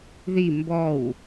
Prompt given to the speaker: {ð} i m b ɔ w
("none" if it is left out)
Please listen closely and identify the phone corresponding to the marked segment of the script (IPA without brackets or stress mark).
ð